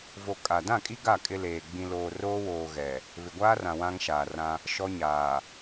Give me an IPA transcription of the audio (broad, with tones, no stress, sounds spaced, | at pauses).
v o˨ kʼ a˨ d ã˦˨ kʼ i˦ ɡ a˦˨ kʼ ɪ˦ l eː˨ ɡ͡b ĩ˨ l oː˨ r oː˦ w oː˨ ɣ ɛ˨ | β ɪ˨ ɡʷ aː˦ r ã˨ w ã˦ ŋ ʃ aː˨ r ã˦ | ʃ ɔ˦ ɲ aː˨